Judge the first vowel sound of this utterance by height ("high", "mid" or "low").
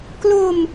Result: mid